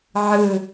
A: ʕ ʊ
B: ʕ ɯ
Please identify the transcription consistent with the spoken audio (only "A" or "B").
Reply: B